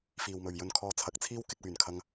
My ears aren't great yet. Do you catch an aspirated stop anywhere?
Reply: yes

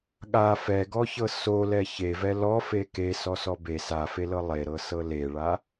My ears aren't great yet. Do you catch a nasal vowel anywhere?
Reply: no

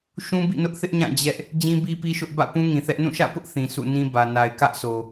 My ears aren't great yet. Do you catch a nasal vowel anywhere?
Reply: yes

